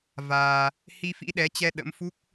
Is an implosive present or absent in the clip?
present